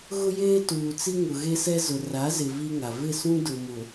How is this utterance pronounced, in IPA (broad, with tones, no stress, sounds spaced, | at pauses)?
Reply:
ɣ ʊ˦ j eː˦ t uː˨ t͡s i˦ ŋ ʊ˨ ɣ e˦ s ɛ˦ z ʊ˨ r a˨˦ z ɪ˨ v i˦ ŋ a˨ v ɪ˦˨ s ũ˦ d ʊ˨ m ʊ˨